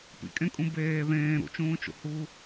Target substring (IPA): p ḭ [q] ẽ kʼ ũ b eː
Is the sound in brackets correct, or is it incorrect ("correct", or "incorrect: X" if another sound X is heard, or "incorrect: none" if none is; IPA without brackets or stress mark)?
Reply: incorrect: kʼ